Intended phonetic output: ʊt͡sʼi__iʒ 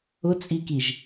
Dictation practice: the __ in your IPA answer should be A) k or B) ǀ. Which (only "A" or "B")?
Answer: A